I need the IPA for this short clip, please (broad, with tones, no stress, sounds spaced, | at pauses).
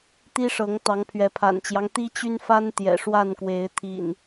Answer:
t̪ i˦ ʂ ɤ˨˦ ŋ t̪ ɑ˨˦ ŋ pʰ ɥ ɛ˨˦ pʰ a̰˨˩ n t͡ɕ j ɑ˦ ŋ t̪ i˦ t͡ɕ y˦ n f a˦ n t̪ j ɛ̰˨˩ ʂ w a˥˨ n k w e˨˦ ɪ̯ t̪ʰ ḭ˨˩ n